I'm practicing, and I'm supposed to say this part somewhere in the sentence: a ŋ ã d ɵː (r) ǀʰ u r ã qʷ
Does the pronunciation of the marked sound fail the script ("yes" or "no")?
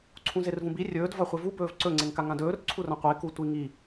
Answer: no